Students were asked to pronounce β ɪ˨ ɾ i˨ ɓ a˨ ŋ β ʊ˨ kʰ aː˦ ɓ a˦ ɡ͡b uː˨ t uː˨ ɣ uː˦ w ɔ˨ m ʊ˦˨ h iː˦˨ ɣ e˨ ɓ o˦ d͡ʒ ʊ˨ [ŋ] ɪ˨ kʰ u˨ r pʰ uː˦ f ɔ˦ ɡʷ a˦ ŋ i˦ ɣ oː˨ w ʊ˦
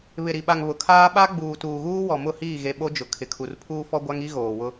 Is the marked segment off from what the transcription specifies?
yes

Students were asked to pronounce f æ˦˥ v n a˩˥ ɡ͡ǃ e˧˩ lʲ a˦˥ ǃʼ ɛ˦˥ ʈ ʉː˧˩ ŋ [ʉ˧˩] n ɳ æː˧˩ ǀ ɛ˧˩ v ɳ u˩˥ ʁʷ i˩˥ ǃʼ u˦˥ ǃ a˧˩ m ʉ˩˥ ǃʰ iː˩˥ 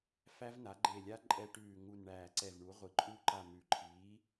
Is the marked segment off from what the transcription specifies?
yes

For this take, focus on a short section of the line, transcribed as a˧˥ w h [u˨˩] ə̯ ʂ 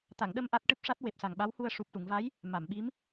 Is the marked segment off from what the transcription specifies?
yes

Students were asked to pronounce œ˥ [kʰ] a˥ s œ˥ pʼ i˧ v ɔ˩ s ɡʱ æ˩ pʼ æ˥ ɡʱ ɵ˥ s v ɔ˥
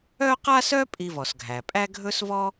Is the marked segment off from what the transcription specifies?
yes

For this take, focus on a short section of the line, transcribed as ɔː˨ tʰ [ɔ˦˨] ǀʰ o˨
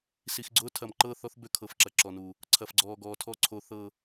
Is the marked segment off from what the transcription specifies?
no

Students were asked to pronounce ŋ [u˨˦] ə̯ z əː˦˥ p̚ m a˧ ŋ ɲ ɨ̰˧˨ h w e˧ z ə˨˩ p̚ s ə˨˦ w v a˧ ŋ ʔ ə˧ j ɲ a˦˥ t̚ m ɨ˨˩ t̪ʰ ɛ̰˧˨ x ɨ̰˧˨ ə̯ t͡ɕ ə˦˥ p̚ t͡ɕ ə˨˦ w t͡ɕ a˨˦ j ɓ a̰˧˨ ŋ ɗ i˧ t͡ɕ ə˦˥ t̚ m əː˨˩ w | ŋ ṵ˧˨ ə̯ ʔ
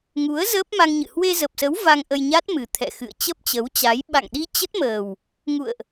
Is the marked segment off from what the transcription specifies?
no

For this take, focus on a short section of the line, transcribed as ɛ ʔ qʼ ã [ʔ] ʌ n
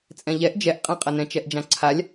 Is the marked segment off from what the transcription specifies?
yes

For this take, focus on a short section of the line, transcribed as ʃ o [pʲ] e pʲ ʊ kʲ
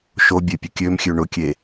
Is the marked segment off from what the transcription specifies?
yes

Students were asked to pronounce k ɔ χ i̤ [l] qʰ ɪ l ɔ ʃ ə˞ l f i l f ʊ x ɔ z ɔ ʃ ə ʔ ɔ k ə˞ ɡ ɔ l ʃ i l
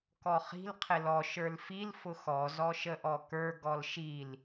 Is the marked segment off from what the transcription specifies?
no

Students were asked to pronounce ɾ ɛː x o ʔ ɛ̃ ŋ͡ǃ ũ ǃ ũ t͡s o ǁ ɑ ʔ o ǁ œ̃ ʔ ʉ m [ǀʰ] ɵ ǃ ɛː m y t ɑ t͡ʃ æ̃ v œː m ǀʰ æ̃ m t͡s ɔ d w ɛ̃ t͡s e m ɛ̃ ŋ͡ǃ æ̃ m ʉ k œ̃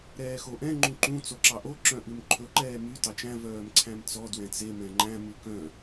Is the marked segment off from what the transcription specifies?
yes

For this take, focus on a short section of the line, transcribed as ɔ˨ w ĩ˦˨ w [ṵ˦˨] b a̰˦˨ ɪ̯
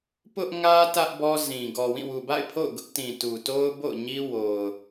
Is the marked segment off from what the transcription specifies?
yes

